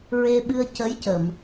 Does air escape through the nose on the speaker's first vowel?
no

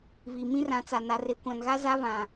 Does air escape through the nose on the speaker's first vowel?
no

